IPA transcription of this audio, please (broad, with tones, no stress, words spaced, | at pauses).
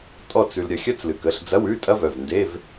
tʼɔ˥˨t͡s ʉ˧lɾʲɐ˧ xʲɐ˦˥t͡slɨ˩˧˩kə˩˧˩ɬ d͡zɐ˧˥˧wʉ˧˥˧tʼɐ˦˥ vœ˩˧˩vnde˧˥˧v